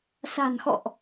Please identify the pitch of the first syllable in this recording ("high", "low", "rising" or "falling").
low